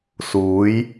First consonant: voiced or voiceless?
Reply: voiceless